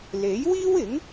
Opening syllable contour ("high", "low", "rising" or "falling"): rising